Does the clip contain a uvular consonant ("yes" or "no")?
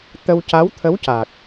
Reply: no